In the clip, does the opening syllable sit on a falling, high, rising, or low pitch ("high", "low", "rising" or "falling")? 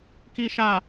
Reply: low